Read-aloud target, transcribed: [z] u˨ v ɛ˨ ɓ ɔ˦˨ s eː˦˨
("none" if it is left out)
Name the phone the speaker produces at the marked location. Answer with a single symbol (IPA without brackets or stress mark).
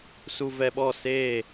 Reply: s